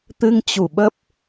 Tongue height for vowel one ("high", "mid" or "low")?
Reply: high